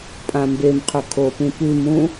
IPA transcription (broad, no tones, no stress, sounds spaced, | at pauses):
pʼ ã m b e m qʰ ɵ kʰ o p ĩ p ʉ m ũ